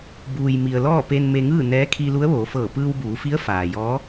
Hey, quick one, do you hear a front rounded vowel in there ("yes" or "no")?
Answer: no